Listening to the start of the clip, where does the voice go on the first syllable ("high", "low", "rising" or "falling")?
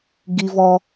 high